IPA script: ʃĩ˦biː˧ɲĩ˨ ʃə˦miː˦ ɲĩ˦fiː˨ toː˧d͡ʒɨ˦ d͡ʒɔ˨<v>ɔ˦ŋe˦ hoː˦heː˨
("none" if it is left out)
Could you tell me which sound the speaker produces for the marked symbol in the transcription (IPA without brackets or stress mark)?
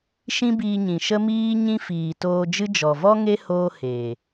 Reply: v